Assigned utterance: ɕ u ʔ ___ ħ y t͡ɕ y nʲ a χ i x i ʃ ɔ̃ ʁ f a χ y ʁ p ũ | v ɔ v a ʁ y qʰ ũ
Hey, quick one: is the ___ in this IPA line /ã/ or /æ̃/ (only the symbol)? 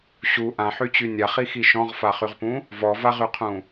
ã